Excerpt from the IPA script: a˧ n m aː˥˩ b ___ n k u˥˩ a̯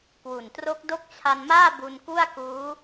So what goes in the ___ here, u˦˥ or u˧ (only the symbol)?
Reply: u˧